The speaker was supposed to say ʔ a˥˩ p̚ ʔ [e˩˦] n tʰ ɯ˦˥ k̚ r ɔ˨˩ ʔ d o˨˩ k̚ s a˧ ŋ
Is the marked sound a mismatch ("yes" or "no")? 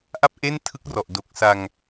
yes